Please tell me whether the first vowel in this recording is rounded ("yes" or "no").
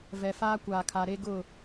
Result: no